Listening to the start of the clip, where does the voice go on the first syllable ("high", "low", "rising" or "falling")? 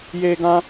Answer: high